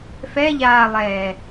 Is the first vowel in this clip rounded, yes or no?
no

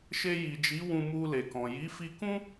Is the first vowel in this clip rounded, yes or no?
no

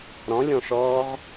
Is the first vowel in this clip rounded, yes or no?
yes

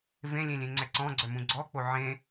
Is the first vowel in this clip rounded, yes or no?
no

